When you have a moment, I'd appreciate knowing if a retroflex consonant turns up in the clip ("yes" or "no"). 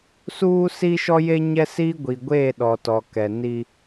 no